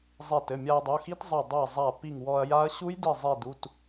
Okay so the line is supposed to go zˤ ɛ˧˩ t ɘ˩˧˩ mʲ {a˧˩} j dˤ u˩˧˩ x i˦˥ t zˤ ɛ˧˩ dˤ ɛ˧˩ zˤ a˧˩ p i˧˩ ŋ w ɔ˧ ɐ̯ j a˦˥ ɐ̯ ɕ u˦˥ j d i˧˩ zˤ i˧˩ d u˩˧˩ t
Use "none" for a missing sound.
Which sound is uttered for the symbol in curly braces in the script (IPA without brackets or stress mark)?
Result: a˧